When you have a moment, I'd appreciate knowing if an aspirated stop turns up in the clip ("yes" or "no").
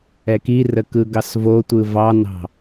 no